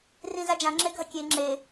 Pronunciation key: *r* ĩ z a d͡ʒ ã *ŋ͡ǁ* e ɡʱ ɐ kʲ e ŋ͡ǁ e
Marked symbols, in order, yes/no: yes, yes

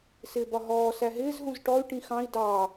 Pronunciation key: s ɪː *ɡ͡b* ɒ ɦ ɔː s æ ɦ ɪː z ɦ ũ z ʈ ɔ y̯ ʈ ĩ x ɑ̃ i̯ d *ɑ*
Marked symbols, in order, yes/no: no, yes

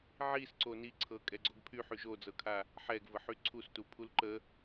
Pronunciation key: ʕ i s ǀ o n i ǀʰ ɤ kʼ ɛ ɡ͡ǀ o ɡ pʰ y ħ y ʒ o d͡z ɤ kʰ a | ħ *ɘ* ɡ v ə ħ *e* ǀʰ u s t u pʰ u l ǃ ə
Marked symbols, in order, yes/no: no, no

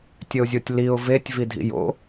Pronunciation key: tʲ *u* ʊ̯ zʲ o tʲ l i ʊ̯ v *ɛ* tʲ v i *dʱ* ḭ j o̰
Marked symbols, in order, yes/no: no, no, yes

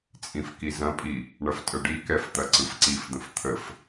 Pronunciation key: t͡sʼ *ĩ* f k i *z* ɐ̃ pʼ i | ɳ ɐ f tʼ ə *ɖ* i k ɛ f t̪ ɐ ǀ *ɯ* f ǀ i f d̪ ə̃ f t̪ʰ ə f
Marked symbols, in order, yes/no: yes, yes, yes, yes

